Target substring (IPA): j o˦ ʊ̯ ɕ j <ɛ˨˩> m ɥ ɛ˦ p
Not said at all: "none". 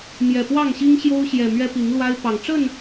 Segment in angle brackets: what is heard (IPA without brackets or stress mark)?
ɛ˨˩